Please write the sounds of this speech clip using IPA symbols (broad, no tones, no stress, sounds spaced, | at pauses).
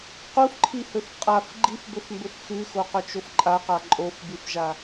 q u f ǃʰ i h ɵ f qʼ a f ɡ͡ǃ i f b ɵ f m b ɵ f x ʉ x o q ɵ t͡ʃ o f ǃʼ a q a ǃʼ o f b ɨ f ʒ a